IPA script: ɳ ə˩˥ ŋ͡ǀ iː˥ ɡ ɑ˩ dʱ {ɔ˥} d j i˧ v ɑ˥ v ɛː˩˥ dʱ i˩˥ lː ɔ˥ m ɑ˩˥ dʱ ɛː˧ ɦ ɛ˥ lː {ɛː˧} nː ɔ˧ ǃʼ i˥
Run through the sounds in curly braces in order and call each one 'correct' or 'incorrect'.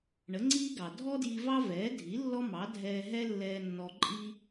correct, correct

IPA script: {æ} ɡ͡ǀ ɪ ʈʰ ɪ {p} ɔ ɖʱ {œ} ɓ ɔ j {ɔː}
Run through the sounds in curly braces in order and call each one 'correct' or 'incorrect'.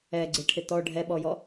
incorrect, incorrect, incorrect, incorrect

